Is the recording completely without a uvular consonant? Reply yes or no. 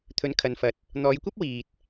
yes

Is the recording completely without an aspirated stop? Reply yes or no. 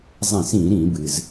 yes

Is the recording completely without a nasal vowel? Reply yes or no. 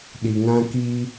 no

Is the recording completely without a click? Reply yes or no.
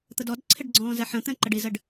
no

